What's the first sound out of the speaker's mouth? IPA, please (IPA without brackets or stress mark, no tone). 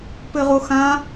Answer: p